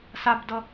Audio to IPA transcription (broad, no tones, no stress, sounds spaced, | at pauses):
s a b d ʌ